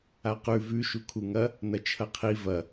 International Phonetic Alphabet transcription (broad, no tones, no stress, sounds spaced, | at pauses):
a q ʉ v ʉ ʃ u kʰ u ŋ ɐ | n ɐ t͡ʃʰ ɐ qʰ i v ɐ